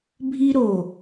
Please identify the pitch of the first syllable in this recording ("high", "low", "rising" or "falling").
high